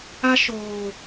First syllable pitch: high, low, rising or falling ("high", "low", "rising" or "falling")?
high